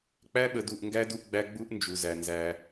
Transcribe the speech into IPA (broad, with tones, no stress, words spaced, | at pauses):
k͡pæ˦ɓə˨du˨ʔŋɡæ˦ du˦ʔɡ͡bæ˦ ɡ͡bu˦ʔ nd͡ʒu˨zæ˨ nzæ˦